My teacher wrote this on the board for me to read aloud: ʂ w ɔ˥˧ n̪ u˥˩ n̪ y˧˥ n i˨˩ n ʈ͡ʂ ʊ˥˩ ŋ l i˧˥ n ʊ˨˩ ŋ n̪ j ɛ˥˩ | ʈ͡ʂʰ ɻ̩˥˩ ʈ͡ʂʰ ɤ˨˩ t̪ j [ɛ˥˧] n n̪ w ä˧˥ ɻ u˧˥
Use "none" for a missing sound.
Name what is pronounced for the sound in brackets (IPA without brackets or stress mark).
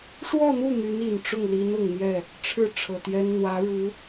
ɛ˥